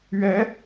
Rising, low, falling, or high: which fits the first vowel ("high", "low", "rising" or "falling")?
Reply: rising